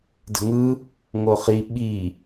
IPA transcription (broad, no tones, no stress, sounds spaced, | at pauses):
d ə̤ ŋ ɯ | ŋ o χ i ɓ i